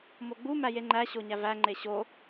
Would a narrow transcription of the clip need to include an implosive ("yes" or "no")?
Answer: no